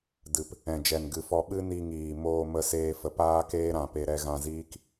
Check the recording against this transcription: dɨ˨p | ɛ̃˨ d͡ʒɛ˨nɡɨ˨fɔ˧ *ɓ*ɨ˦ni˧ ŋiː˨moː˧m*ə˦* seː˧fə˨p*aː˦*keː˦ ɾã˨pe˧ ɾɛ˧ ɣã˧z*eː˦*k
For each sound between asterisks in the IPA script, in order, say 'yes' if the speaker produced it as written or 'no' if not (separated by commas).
yes, no, yes, no